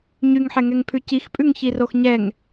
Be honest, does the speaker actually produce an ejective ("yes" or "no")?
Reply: yes